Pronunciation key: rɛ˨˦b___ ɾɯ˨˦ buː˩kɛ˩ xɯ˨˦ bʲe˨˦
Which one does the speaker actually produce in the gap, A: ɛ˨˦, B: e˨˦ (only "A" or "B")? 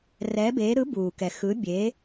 B